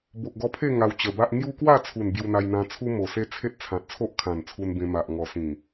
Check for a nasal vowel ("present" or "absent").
present